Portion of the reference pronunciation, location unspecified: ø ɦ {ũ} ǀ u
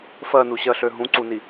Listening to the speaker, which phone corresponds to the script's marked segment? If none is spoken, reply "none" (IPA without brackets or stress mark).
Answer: ũ